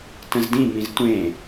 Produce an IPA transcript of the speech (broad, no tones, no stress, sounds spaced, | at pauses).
t ə̃ z d ĩ m ĩ z tʷ ẽ